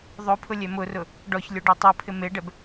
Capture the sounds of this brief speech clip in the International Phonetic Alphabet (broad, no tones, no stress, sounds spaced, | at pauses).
ðˤ o pʰ ʊ lʲ ɛ m ʊ r ʊ | ɖ ɔ ç lʲ o ɖ ɛ tˤ o pʰ ɪ m e ɖ ɛ b